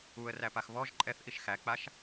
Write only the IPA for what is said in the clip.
uə̯ræpax βɔʒ ǃʼɛθʔiʃ xæk͡paʃ

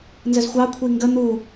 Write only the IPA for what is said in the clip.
nzəzxʷɑ kʷʰiŋɡə n̪u

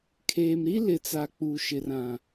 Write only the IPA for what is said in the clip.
kʰeː˨m ɾi˦lɪ˨t͡sa˨ k͡pu˨ʃɪ˨rã˨

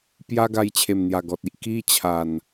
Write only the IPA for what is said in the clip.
pja˦ɡa˧jt͡ɕʰe˨˩mn̪ja˨˩ ɡɔ˨t̚i˨ʔ ki˦t͡ɕʰa˨˩n

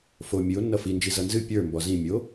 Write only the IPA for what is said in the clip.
fo mʲɨo̯ nːʌfind͡ʒi zʌnzɨ pʲə˞ mbɔzĩmʲo

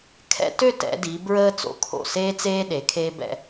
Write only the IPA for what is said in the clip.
kʰɛ̰˧tø˥˧ tɛ̰˩˧di˩˧ bɹəː˥t͡so̰˩˧kʰo̰˧˩ seː˥t͡seː˥ ɗe˩˧kʰeː˥ bɛ̰˧

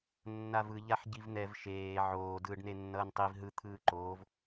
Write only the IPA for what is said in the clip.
nːavɯ ʎaħɟivn̪ɛv ʃeː ʕoː dɯːɖnenːʌːntˤiv ɦɯ t̪ʰɯːǃoːv

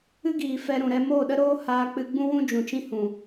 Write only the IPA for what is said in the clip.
ɨ˦ɡiː˨ fɛ˧ ɾũ˨ɾɛ˧ moː˦˨ɗə˦ɾoː˦ haː˦k͡pɨ˦ ɡ͡bũ˦wũ˦ d͡ʒũ˨t͡ʃĩ˦ hũ˨

